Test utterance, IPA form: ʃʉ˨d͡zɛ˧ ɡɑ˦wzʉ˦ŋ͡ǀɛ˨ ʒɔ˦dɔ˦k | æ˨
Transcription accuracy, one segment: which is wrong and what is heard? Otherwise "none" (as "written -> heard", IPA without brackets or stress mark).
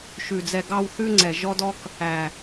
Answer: z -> θ